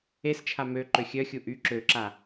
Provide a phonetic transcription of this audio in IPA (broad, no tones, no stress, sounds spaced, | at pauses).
e s t͡ʃʰ a m ø ǃ ø xʲ œ xʲ u ʔ y ǁ ø ǁ a